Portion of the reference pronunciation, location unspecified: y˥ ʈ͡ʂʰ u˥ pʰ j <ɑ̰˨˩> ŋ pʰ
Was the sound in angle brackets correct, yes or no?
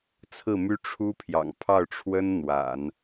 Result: yes